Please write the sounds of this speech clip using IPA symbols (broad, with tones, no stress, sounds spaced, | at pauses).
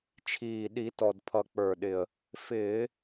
t͡ʃʰ iː˨˩ ɗ i˧˩˧ t ɔ˨˩ d pʰ ʌ˨˩ k͡p ə˞˨˩ ɗ ɪ˨˩ ə̯ | f ɪː˧˩˧